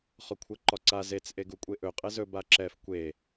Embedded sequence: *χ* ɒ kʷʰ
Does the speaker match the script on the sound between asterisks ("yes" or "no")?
yes